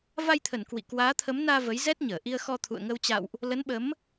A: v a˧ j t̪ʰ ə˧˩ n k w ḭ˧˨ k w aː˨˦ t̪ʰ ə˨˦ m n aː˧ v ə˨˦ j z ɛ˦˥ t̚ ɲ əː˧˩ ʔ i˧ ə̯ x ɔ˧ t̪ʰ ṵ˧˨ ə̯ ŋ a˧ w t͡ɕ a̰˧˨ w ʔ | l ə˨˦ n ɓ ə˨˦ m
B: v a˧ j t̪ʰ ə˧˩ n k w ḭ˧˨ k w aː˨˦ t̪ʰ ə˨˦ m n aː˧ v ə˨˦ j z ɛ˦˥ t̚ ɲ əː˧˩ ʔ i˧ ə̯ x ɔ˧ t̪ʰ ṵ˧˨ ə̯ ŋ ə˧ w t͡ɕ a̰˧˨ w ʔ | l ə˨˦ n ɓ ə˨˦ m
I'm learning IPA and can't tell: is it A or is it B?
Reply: B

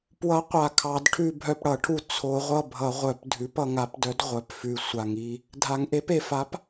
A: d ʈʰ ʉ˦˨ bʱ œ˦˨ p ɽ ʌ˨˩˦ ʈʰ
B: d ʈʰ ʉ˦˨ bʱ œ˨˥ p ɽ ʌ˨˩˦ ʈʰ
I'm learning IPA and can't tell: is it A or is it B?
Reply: A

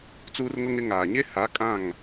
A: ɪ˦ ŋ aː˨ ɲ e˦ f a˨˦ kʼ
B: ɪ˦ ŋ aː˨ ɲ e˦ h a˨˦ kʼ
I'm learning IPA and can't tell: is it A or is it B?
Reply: B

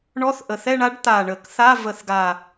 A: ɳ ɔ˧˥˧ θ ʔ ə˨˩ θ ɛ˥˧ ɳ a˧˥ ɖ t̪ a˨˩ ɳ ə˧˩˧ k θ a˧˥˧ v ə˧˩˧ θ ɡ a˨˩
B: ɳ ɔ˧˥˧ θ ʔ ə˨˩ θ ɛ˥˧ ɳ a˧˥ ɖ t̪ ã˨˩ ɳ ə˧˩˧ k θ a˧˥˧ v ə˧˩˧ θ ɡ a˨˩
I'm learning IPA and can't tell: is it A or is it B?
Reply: A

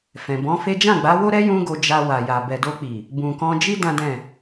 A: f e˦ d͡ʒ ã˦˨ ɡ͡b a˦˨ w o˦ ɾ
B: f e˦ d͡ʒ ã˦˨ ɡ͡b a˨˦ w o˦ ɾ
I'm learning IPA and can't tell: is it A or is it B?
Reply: B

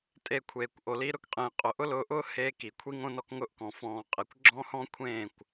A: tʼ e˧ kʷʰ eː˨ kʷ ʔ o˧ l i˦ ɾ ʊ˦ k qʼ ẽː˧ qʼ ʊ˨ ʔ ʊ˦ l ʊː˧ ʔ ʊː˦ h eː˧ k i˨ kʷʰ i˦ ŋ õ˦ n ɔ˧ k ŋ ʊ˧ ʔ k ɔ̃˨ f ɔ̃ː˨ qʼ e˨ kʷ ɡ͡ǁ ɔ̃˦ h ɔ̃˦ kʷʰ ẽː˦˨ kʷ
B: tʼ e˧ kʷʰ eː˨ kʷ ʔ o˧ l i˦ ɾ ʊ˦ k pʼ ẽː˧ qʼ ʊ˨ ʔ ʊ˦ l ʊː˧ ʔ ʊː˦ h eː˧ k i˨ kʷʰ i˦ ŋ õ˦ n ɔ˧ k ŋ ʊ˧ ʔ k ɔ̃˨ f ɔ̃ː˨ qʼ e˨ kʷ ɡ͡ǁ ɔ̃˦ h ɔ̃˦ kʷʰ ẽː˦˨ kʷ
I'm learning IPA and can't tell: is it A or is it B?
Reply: A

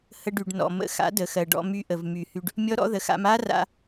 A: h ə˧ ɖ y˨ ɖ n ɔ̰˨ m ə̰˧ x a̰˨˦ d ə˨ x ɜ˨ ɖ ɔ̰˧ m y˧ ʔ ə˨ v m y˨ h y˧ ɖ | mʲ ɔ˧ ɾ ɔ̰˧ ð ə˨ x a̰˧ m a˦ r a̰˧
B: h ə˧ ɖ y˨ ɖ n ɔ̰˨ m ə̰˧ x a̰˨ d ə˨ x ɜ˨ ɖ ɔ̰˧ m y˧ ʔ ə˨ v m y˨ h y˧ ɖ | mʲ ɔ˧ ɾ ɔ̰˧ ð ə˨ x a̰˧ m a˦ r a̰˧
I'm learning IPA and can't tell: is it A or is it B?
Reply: A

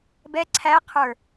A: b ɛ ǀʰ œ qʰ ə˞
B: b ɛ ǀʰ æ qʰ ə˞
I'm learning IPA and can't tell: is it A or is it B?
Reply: B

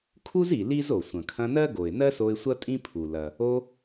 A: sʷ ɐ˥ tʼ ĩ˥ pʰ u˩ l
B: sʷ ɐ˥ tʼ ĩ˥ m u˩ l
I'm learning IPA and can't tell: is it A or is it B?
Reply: A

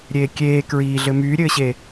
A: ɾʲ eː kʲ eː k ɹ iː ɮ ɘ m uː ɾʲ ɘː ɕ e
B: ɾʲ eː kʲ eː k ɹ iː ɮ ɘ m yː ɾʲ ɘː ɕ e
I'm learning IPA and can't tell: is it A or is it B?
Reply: B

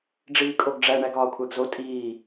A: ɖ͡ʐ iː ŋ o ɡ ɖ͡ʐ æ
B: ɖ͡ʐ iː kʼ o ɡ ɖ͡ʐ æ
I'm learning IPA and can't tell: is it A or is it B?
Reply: B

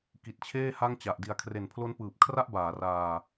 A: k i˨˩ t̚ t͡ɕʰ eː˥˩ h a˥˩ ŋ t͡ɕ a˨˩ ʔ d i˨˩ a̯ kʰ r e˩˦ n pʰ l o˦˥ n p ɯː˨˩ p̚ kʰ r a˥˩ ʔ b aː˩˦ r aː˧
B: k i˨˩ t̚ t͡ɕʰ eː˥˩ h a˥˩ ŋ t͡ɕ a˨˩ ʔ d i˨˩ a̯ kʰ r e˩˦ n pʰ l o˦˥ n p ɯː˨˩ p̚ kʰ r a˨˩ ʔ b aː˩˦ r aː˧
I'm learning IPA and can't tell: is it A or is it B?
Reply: A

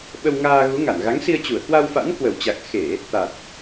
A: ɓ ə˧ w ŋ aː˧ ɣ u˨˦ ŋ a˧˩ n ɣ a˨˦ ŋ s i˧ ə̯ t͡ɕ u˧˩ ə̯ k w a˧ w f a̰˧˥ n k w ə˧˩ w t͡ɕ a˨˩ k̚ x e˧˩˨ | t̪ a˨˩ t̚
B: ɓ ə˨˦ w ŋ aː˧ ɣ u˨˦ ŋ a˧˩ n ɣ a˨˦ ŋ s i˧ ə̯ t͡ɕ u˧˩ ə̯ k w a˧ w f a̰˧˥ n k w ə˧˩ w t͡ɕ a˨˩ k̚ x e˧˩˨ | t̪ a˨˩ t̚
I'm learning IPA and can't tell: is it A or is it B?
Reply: A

